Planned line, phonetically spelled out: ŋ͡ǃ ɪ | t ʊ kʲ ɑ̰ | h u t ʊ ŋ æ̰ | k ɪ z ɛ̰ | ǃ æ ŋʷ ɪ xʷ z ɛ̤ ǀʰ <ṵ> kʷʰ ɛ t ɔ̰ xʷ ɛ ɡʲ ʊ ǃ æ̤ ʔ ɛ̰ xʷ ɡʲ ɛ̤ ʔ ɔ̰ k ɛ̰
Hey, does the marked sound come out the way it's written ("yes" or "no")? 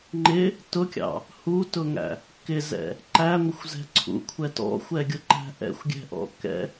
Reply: yes